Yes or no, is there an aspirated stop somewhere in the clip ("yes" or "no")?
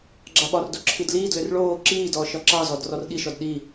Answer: yes